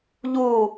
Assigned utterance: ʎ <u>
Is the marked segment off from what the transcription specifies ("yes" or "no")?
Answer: no